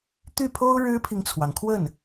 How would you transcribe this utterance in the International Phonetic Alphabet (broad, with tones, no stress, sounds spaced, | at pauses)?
t̪ y˥˩ pʰ o˥ ʊ̯ ɻ ɻ̩˥ pʰ i˨ ŋ t͡sʰ w ɑ˩ ŋ kʰ w ə˥˩ n